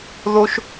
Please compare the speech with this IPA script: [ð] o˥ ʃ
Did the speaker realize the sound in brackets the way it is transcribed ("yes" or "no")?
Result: yes